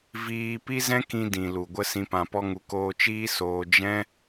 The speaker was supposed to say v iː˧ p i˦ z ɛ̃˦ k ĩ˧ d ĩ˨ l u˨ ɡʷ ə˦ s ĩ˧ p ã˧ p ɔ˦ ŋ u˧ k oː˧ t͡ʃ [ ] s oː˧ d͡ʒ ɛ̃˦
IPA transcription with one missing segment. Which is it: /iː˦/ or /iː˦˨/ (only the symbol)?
iː˦